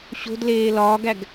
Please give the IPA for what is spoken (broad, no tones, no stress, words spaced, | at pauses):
ɕo̤dleː lɒːɡæɡ